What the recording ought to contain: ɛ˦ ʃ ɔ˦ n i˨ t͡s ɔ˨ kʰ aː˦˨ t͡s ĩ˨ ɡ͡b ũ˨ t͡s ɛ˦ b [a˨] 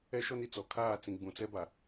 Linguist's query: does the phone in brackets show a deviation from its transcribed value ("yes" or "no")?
no